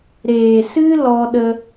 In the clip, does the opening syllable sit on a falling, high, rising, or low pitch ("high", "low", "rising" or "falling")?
low